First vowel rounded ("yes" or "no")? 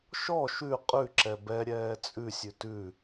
yes